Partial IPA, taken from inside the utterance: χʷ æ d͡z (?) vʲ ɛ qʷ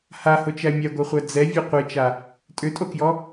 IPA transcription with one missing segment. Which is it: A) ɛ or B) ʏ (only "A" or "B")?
A